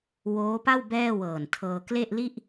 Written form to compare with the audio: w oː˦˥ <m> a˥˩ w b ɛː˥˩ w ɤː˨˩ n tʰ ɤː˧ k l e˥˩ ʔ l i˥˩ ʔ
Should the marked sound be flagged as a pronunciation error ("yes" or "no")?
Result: yes